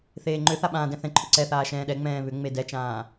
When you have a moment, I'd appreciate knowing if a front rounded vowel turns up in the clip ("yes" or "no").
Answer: yes